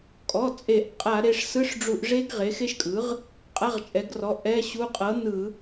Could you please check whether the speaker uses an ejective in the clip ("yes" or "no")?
yes